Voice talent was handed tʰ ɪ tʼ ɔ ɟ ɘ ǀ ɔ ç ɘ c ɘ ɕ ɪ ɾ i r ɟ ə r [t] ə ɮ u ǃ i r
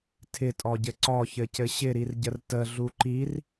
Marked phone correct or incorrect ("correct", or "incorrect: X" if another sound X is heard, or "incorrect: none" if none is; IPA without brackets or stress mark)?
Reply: correct